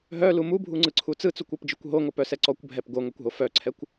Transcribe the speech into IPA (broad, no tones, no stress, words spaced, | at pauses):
ɦœlu mubʱuŋ͡ǀɯǀʰu t͡sɯt͡sukʷɔpd͡ʒɯkʷ ɦoŋopœsɛ ǀɔkʷbʱɛp ɡoŋœkʷɦo fœǀʰɛkʷ